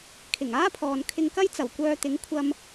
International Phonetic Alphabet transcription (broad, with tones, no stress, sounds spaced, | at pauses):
kʰ ɪ˨˩ ŋ aː˥ pʰ ɔː˨ n kʰ ɪ˧ ŋ k ɐ˥ j t͡s ɐ˨˩ w kʷ œː˧ t̪ ɪ˨˥ ŋ kʷʰ ɐ˧ m